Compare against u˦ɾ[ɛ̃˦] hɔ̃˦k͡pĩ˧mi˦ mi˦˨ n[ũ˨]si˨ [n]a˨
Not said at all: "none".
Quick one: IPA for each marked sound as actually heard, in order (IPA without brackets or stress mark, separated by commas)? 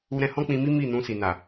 ɛ̃˦, ũ˧, n